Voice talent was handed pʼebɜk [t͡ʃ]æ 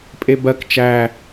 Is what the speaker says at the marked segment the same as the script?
yes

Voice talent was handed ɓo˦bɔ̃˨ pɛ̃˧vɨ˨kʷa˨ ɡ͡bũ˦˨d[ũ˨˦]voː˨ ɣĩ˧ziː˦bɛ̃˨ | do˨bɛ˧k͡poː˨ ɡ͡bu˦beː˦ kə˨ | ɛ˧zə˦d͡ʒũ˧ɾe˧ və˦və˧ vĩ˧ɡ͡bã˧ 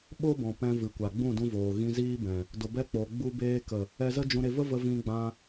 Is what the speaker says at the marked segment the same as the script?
no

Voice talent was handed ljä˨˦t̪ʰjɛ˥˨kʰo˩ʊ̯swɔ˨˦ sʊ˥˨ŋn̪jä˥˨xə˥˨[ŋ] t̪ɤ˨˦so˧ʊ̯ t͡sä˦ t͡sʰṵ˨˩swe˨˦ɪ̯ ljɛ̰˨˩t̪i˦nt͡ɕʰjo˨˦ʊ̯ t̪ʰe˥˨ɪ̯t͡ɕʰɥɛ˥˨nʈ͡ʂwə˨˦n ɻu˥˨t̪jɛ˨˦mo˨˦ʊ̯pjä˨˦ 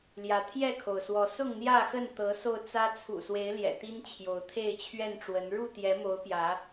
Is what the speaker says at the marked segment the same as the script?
no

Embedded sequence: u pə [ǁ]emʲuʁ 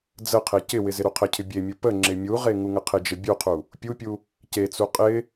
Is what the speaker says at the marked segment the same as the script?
no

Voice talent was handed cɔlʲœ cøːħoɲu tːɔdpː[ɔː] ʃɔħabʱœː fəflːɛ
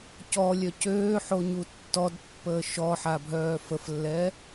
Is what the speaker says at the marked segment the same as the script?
no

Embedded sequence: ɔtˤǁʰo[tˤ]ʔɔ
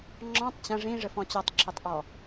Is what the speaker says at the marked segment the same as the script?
yes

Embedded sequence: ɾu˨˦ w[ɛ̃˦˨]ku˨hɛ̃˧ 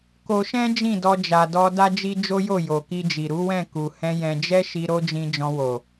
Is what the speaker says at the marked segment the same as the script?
yes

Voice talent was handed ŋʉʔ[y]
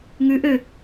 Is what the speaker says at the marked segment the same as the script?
no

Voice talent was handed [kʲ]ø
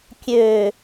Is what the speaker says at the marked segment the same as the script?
yes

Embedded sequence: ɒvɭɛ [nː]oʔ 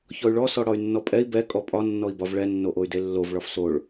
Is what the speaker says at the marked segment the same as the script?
yes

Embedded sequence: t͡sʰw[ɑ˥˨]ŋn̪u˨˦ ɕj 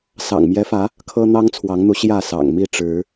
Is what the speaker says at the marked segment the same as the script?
no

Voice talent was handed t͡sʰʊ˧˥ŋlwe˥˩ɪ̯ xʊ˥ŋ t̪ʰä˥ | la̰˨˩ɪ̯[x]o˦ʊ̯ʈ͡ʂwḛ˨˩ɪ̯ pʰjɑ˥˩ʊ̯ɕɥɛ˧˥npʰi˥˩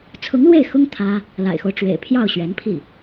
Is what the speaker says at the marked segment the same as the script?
yes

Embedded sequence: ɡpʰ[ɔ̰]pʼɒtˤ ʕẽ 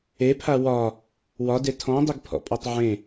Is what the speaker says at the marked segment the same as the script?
yes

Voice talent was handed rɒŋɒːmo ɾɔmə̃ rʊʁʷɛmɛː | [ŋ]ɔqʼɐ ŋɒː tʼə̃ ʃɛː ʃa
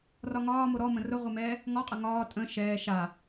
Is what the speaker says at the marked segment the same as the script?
yes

